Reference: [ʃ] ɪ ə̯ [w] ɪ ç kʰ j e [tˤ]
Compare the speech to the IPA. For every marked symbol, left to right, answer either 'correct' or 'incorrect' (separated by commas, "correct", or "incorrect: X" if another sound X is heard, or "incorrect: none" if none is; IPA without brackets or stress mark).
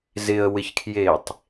incorrect: z, correct, correct